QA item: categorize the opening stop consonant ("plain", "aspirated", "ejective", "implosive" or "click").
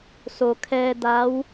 aspirated